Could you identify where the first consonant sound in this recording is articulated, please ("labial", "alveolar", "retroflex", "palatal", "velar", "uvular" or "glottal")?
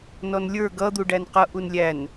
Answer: alveolar